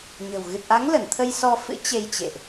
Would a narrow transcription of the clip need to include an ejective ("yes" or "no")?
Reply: no